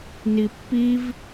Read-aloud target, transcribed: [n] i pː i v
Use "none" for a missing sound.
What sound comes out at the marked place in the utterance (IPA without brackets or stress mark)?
n